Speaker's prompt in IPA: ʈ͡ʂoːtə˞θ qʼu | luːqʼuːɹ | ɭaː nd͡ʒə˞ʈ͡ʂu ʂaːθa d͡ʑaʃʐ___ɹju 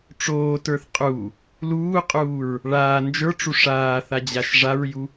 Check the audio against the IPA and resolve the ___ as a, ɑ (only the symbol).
a